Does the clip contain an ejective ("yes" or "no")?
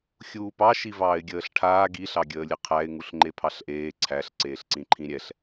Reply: no